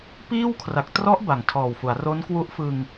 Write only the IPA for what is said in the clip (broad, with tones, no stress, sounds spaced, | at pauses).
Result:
p iː˥˩ w kʰ r a˨˩ k̚ t r ɔ˦˥ ʔ b a˨˩ ŋ tʰ ɔː˨˩ w f u˩˦ a̯ r o˦˥ n k w u˦˥ ʔ f ɯ˧ ŋ